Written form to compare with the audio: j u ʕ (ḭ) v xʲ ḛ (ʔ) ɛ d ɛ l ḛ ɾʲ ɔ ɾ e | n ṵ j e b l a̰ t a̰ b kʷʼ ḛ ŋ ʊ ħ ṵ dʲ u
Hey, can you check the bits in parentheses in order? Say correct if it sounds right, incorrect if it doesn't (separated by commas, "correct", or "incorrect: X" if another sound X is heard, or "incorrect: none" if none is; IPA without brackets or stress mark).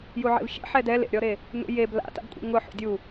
incorrect: ḛ, incorrect: ħ